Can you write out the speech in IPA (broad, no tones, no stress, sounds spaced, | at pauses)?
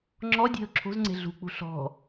ŋ͡ǁ ɔ dʲ e̤ ʊ̯ ǁʰ o̤ z ŋ͡ǀ e̤ ɮ ṳ k͡p ṳ ɬ ɔ̤